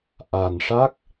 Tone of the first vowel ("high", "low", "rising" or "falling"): low